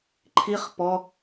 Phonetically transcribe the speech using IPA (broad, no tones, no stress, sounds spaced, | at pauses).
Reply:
ǃʰ i χ p ɔ